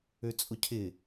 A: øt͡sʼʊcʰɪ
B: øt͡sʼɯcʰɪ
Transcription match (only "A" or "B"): A